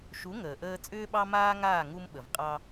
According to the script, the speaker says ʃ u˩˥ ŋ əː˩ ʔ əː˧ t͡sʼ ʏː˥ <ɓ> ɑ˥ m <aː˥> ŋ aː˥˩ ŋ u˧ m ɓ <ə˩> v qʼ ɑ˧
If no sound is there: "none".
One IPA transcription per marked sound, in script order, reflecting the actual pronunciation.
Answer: ɓ, aː˥, ə˩

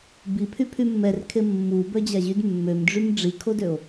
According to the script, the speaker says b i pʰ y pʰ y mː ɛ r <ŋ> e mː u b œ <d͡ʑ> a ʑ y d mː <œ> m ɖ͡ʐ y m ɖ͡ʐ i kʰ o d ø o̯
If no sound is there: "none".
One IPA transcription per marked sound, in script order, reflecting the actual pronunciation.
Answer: kʰ, d͡ʑ, ø

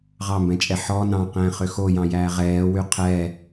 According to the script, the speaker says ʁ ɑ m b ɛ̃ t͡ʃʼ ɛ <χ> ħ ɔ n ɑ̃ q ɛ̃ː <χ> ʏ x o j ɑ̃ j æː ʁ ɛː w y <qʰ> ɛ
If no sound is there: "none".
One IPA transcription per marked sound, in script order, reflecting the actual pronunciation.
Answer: none, χ, qʰ

